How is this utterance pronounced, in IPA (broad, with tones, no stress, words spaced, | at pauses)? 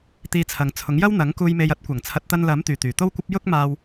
t̪iː˧t͡sʰɐ˨ŋt͡sʰʊ˨˥ŋjɐ˥w n̪ɐ˨˥ŋkuː˧jme˧j ɐ˥t̚kʷɐ˨˩ŋ t͡sʰɐ˨˥t̚t̪ɐ˧nlɐ˨˥m t̪yː˨t̪yː˨˩t̪o˥wkʷɐ˥p̚ jʊ˥k̚maː˧w